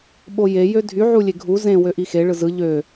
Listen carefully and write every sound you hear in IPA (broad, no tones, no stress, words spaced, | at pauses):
ɓoje jødʱy ʕulʲeɡʱu zẽ wøʔixe ɭɯzɯ ʎø